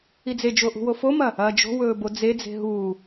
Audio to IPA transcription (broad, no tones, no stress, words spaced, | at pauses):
id͡zed͡ʒo ʔṳwofomɐ | ɐːd͡ʒo̤wɵː bod͡zed͡ze̤ ɦuː